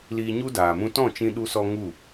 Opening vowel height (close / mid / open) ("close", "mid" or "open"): close